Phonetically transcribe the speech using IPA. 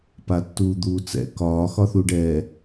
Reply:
patːuːd̪uːt͡sɛ̰ kɒː xɒθuɖɛː

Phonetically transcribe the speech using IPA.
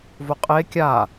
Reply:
voqʼe kʲa

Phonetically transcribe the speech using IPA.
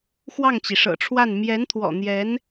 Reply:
xwɑ˥˩ŋt͡ɕi˩ʂɤ̰˨˩ʈ͡ʂʰwa˥˩n mjɛ˧˥nt̪ʰwɔ̰˨˩n̪jɛ˧˥n

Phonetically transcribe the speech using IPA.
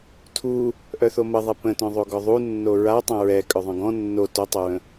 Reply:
tʰu | ʔœθoməðˤɛ pə̃tœ̃ðˤoɡɔ ðˤunːo ɹa tˤœ̃ɹɛ kʼœðˤœ̃ɡɔ̃ nːo totˤoɹə̃

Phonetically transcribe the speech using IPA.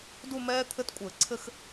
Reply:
du˥˧mɛː˦˥ t̪ʰɘ˦˥tkʷʼɘː˧˩˧ǀʰɘ˥˧x

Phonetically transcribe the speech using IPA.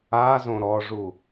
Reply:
azõ ɾɔʐu

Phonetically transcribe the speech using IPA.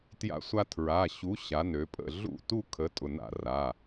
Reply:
tja̰˧sʷa˧ tʰɹa˩˧˩ ɕu˨˥ɕa˩˧nø˩˧pʼə̰˥˩ ɮṵ˥˩tu˥˧ kʰə˨˥tʼʊ˩˧˩na̰˥˩ ra˩˧˩

